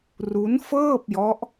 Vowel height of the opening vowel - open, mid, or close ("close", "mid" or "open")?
close